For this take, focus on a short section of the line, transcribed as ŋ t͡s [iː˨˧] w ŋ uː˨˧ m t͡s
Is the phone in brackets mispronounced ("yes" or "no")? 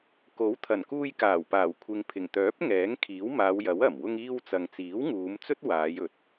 yes